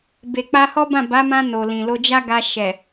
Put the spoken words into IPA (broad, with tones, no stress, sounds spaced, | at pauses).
b e˨ k͡p a˧ h ɔ˦ b ã˦˨ b a˨˦ m ã˧ n o˨ l ĩ˨ l o˧ d͡ʒ a˦ ɡ a˧ ʃ ɛ˨